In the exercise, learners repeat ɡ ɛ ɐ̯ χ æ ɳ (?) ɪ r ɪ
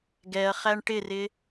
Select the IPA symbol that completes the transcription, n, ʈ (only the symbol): ʈ